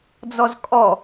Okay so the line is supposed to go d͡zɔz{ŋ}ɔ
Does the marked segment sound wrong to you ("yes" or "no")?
yes